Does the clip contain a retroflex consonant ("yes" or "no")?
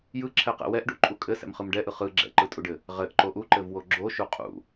yes